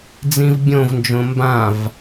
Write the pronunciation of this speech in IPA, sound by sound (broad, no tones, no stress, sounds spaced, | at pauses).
d͡z ĩ v bʲ õ v n d͡ʒ õ m b ã v